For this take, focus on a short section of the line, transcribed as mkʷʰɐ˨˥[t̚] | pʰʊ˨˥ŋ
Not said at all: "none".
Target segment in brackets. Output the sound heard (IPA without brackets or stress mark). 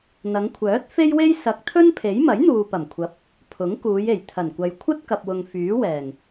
p̚